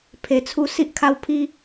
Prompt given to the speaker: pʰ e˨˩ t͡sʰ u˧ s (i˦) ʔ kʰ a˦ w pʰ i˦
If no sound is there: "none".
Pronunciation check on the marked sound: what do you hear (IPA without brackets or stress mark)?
i˦